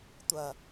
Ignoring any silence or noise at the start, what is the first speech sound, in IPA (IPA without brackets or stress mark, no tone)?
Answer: tʷ